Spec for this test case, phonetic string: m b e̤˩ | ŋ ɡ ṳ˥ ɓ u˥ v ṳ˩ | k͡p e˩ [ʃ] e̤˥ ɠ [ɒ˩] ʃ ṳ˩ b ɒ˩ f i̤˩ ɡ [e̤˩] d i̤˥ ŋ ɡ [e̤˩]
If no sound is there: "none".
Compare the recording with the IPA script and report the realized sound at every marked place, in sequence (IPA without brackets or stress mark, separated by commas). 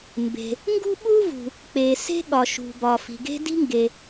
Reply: s, ɒ˩, e̤˥, e˩